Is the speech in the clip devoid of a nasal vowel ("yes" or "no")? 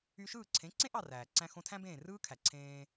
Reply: no